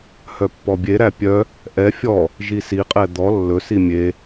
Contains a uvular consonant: yes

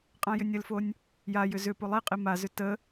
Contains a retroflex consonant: no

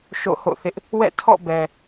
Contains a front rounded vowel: no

